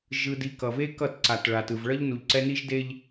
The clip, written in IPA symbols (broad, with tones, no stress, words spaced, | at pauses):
ʒɯ˨di˨ kʌ˨ve˦kʌ˦˨t ǀa˨t ɭa˨tɯ˨v ɭʌ˦ʎnu˨ʎǀɛ˦ ni˦ʒde˦ʎ